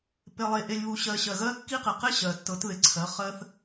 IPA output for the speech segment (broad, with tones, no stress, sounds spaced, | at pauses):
p e˨ lˠ e˨ ʔ e˨ lʲ β u˨ ɕ ɜ˨ ɕ ɜ˨ ɣ ɜ˦ kː i˦ q ɪ˨ q ɪ˦ ɕ ɜ˨ tː ɤ˨˦ t ð ɪ˨ ǀʰ ɜ˨˦ χ ɜ˦ θ